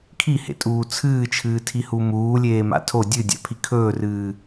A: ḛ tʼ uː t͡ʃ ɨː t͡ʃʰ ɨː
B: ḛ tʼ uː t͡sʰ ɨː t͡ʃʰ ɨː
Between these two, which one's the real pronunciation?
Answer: B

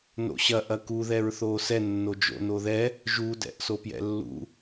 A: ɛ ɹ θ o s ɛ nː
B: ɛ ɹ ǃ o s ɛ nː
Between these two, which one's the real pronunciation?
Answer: A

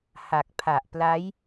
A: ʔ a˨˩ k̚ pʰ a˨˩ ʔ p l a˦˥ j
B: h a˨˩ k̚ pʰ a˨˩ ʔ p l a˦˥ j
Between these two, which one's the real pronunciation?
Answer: B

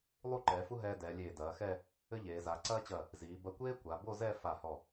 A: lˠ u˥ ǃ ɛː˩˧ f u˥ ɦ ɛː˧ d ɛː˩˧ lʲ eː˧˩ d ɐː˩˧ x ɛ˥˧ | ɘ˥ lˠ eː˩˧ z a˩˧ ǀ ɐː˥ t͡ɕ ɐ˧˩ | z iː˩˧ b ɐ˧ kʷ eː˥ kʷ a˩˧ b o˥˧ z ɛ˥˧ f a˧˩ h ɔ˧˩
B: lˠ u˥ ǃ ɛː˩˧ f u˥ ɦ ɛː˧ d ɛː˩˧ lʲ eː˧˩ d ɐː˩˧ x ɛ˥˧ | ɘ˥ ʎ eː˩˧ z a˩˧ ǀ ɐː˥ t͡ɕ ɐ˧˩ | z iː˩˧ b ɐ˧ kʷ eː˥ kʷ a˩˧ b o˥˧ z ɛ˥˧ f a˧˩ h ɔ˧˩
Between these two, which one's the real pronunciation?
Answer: B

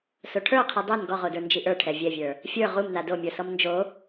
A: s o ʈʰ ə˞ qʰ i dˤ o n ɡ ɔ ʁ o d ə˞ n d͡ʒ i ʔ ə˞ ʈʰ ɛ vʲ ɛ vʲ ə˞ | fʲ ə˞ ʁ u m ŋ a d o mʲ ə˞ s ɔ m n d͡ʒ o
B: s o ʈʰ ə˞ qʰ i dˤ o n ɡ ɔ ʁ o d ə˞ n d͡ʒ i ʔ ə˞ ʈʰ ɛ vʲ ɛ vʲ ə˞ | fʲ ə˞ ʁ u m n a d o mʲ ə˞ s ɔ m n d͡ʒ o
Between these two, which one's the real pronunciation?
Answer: B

